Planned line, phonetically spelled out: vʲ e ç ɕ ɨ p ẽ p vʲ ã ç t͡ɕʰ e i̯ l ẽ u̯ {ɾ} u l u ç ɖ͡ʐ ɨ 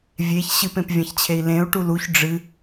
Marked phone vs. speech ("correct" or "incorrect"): incorrect